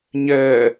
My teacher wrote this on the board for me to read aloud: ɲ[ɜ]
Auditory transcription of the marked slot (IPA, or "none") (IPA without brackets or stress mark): ɛ